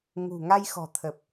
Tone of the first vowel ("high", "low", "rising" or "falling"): low